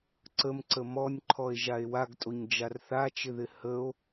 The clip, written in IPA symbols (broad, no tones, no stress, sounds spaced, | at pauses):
ǀ ə m ǀ ə m ɔ nʲ ǃʰ ɔ e̯ ʒ a e̯ w a ɡ tʼ o ɲ d͡ʒ a r θ a t͡ʃ ɪ ð ɪ h ə o̯